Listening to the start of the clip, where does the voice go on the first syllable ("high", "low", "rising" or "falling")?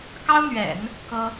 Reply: high